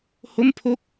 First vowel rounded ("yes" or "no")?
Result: yes